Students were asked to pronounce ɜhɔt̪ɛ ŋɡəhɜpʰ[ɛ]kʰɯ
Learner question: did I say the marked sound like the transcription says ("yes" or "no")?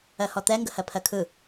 no